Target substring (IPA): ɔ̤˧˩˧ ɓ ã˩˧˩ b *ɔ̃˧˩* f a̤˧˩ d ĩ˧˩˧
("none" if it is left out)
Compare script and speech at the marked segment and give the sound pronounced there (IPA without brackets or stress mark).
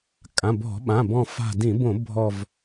ɔ̃˧˩